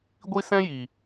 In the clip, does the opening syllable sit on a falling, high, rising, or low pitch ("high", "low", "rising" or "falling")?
high